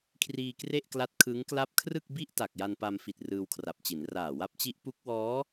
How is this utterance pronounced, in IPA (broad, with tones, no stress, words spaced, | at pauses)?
kʰriː˧kre˥˩ʔkla˦˥t̚ kʰɯ˦˥ŋ kla˦˥p̚kʰrɯ˥˩k̚bi˥˩ʔta˨˩k̚ ja˧npa˧mfi˨˩t̚ rɯː˧wkʰra˨˩p̚t͡ɕi˩˦n raː˨˩wa˦˥p̚t͡ɕi˦˥ʔ pu˦˥k̚wɔː˦˥